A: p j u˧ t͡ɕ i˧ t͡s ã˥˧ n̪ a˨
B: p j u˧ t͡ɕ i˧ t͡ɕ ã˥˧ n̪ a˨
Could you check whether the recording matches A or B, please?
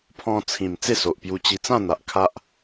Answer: A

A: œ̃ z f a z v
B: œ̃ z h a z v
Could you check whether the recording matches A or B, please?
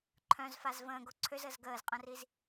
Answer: A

